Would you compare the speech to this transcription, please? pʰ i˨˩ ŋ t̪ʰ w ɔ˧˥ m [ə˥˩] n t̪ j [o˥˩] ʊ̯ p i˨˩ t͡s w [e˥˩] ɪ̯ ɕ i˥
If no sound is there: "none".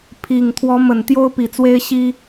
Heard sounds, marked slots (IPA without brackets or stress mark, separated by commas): ə˨˩, o˥, e˥